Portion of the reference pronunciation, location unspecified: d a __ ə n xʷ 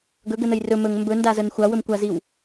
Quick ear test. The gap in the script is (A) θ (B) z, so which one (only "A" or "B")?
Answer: B